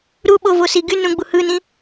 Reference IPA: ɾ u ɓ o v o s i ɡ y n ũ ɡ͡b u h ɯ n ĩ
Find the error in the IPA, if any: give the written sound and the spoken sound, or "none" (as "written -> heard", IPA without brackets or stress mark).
none